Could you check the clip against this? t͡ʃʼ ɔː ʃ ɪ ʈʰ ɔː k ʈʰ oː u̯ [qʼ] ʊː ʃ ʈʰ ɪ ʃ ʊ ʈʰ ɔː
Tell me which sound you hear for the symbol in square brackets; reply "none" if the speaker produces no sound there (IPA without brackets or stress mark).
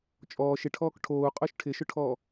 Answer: qʼ